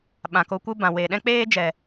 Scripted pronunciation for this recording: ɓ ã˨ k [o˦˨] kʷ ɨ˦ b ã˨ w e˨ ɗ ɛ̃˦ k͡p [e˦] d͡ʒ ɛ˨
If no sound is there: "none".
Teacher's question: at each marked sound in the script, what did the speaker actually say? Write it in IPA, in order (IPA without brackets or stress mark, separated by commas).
o˧, eː˦